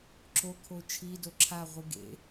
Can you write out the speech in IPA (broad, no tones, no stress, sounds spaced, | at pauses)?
ǁ o kʰ o t͡ʃʰ i d o ǁʰ a ʁʷ ɯ ɡ ḛ